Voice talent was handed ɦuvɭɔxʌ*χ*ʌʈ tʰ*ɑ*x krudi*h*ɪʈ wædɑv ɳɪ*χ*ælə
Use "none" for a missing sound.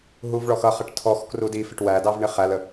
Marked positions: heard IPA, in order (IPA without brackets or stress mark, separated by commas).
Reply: χ, ɔ, f, χ